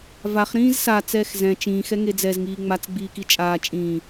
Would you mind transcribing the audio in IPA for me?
vaχ ɾĩːzsa t͡sɛːxzɛ̃ t͡ʃĩːxɛŋe d͡zɛzŋiː ŋ͡mat͡sɡ͡biːki t͡ʃʼaː t͡ʃʼĩː

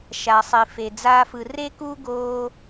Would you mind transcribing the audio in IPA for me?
ʃa˧sˤi˧fe˧ d͡za˦fɯ˧ re˦kuː˦ ɡoː˦

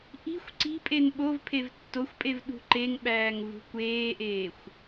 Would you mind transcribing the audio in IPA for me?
ʔi̤xʷ ǀi̤pʼen ɓovpʰev tːoxʷpʼev ɗṳǃeŋɓæːŋ vṳkʷeːʔeːxʷ

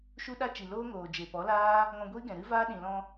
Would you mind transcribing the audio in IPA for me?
ʃu˦ɗa˦t͡ʃi˨ loː˦ŋoː˨ d͡ʒe˨pɔ˨˦laː˦ | ŋɔ̃˧ɡʷiː˦ ɡɛ̃˨ɾɨ˦vaː˦ ɗĩ˨lɔ̃˧

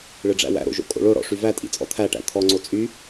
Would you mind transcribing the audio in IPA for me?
ɭɨɖ͡ʐæ̰wæ̰ɾo̰ ʒo̰kʼo̰ɭoɽɔ̰ ʂyvætʼḭ t͡sʼɔ̰t̪ʰæʈæ̰ t̪ʰɔŋ͡ǀo t͡sʼy

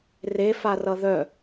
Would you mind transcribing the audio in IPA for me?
refarʌ ðœ

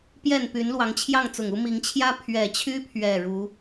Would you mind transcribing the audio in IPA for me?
pjɛ˥˨npy˨˦nlwɑ˨˦ŋt͡ɕʰjɑ˥˨ŋ t͡sʊ˨˩ŋu˦mi˨˦ŋ t͡ɕʰjä˦ pʰɥɛ˨˩t͡ɕʰy˦pʰɥɛ˨˩ ɻu˨˦

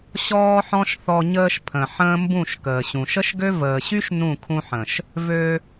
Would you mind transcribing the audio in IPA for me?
ɕɔː˦ħɔ̃˦ʃθɔ˧ ɲəː˧ʃ pʰə̃˨ ħə̃ː˦mbũ˦˨ʃ kəː˨ɕũ˨ ʃə˦ʃɡø˦ vəː˨ɕy˦ʃ nũ˦˨ kʰũ˧ħə̃˨ʃ | vø˧

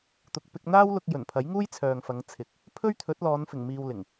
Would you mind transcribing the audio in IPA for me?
t̪ʊ˨k̚pɪ˧k̚ n̪aː˥wlʊ˧k̚jɵ˨˩n pʰɐ˨˥jŋuː˥j t͡sʰœː˨ŋfɐ˨˧ŋ t͡sʰɪ˨k̚ | pʰɵ˥ɥt̪ʰɵ˨˥t̚lɔː˨˧nfɪ˨˩ŋ miː˧wlɪ˨˩ŋ

